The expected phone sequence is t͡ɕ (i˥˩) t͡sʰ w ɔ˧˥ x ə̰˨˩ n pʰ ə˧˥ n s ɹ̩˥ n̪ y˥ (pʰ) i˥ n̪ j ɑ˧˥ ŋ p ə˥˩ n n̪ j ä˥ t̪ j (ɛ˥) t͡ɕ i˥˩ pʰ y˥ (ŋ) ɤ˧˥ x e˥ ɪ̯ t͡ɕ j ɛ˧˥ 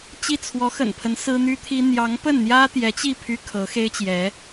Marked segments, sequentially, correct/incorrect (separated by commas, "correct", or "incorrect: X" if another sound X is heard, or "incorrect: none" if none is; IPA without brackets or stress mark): correct, incorrect: t̪ʰ, incorrect: ɛ˧˥, incorrect: kʰ